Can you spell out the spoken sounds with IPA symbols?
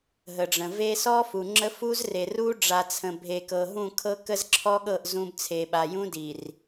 ɦ ə˨ ɖ͡ʐ ə̃˨ v e˦ s ɔ˦ f u˨ ŋ͡ǁ ə˦ f u˦ z r e˨ r u˦ ɖ͡ʐ a˨ t͡sʰ ə̃˨ bʱ e˨ k ɤ˨ ɦ ũ˦˨ kʰ ɤ˦ k ə˦ z ǁʰ ɔ˦ ɠ ɤ˦˨ ʔ z ũ˦ b t͡sʰ e˨ ɓ a˨ j ũ˦ d i˨ r

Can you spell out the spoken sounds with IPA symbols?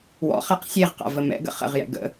w ɔ̰ χ a q sʲ e ʁ q a̰ v ə m ɛ̰ ɡ ə̰ χ ə̰ ʁ j ɛ̰ ɡ ə̰

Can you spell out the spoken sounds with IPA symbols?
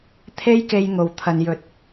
t̪ʰ e˥ j k e˧ j ŋ o˨ w t̪ʰ ɐ˨ n j ɵ˨˥ t̚

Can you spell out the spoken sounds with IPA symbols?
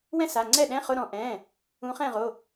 w ɛ̃˥˧ s a˩˧˩ ŋ͡ǀ ɛ˥˩ ɗ ɛ̃˧˥˧ χ ʊ˧˥˧ ɾ ɔ̃˨˦ ʔ ɛ̃˩˧˩ | ũ˨˦ χ ɛ̃˥˩ ʁ o˩˧˩

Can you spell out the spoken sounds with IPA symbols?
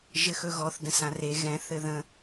ʒ ɘ x ɵ ɣ ɔ θ d ə̃ s ã r e ɣ ɛ̃ θ ɘ ð ə̃

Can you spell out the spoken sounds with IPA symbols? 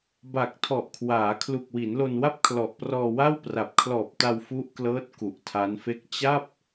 b a˨˩ k̚ tʰ ɔ˨˩ ʔ kʰ w aː˩˦ kʰ l u˨˩ k̚ w i˩˦ n l o˧ n w a˥˩ p̚ kʰ l ɔ˨˩ ʔ p r ɔː˧ w a˥˩ w p r a˨˩ p̚ kʰ l ɔː˨˩ p̚ t a˧ w f u˦˥ ʔ k l ɤː˦˥ t̚ k u˨˩ ʔ tʰ a˦˥ n f e˥˩ k̚ t͡ɕ a˥˩ p̚

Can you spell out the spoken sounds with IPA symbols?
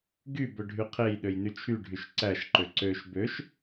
ɡ y b ɵ ɖʱ y qʰ e j ɗ ø j n y t͡ʃʰ y ɖʱ y ʃ ǀ æ ʃ ǃ ø ǀ ø ʃ b ø ʃ

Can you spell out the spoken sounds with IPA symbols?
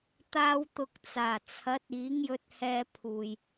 t̪ aː˧ w t̪ ʊ˨ k̚ t͡s aː˨˩ t͡sʰ ɐ˨˥ t̚ iː˨˥ ŋ j ɵ˧ t̚ h ɛː˧ pʰ uː˨ j

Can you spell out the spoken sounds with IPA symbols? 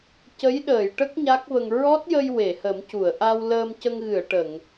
c ə˧˥ j ɗ əː˨˩˨ j ʈ ə˦˥ k̚ ɲ a˦˥ k̚ v ə˧ ŋ ɹ ɔ˦˥ t̚ j ə˧ j w e˨˩˨ h ə˨˩˦ m c u˨˩˨ ə̯ ʔ a˧ w l əː˧ m c ə˧ ŋ ɣ ɨ˨˩˨ ə̯ ʈ ə˨˩˨ ŋ

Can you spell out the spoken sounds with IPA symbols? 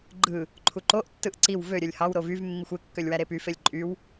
ɡ͡ǃ ɯ | ǃʰ u ǃ o ʔ tː ɯ ʔ ǀ i w v ø ɾʲ ø lʲ h ɑ w ɾ o v y v mː i xʷ e kː ø lʲ w æ ɾ e p y f e lʲ ǃʼ y w

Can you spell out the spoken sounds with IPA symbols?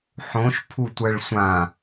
ħ õ ʃ pʰ u tʷ ɜ ɭ sʷ ã

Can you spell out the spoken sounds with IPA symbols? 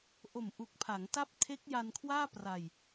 ʔ o˨˩ m ʔ u˨˩ k̚ pʰ a˩˦ ŋ t a˦˥ p̚ tʰ e˦˥ k̚ j a˧ n kʰ w aː˥˩ p r a˧ j

